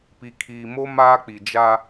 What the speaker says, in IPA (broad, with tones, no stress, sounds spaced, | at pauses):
p i˨ kʰ iː˨ m o˦ m aː˦ k͡p i˨ d͡ʒ a˦